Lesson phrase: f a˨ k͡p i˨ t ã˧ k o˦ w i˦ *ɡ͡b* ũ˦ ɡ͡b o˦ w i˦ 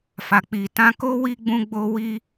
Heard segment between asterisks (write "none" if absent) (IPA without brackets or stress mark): ɡ͡b